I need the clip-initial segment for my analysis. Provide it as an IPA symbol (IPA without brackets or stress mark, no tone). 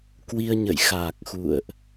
k